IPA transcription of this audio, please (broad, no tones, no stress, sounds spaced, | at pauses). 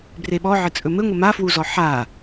b r e ɓ ɔ ʕ ɘ t͡sʼ ɵ m ɘ ŋʷ ɘ m a f w u z ɔ ħ a